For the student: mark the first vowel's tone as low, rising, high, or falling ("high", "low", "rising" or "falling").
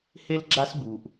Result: high